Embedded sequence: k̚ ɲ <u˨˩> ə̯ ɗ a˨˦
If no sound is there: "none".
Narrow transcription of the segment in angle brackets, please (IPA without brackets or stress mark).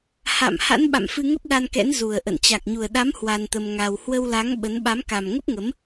u˨˩